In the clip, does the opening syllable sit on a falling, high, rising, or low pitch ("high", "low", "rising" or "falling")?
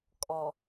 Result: low